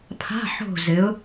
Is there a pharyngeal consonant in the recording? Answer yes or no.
yes